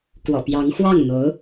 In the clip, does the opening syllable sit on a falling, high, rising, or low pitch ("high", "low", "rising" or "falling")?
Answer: low